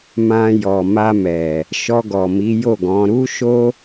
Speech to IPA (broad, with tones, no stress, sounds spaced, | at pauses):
m ã˧ j ɔ˨ m a˧ m ɛ˨ | ʃ ɔ˧ ɡ ɔ˨ m i˨˦ j o˦˨ ɡ ɔ̃˨˦ ɾ u˦ ʃ o˦